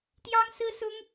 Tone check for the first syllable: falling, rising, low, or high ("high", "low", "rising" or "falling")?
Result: high